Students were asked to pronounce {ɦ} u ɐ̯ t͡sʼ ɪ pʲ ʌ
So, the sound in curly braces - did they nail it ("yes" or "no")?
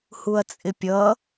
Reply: no